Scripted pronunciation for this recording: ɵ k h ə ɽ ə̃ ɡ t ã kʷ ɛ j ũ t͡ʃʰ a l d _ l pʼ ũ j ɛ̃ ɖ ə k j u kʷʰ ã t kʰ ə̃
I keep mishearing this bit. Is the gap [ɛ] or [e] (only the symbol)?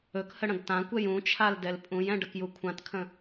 ɛ